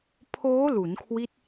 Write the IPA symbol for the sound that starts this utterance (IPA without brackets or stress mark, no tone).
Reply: pʰ